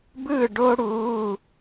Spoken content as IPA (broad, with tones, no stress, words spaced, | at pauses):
bɯ˥˨ɖo˥ ɽu˧˥˧